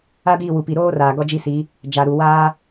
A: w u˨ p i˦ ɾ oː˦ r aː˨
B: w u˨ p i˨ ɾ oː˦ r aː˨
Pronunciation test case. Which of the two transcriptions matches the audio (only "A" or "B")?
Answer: B